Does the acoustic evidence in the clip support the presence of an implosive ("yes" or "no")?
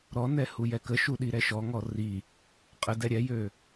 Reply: yes